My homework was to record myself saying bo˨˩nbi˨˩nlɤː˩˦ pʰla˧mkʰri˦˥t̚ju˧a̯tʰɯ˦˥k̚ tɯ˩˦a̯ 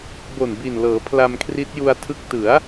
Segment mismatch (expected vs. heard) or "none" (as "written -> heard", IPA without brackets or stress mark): none